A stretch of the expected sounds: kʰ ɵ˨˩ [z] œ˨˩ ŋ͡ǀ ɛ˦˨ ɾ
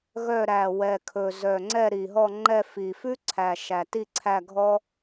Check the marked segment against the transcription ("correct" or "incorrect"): correct